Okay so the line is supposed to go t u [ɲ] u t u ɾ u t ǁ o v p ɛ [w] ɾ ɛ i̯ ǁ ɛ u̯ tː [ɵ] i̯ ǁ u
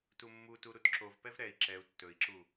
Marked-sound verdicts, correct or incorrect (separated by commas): incorrect, incorrect, correct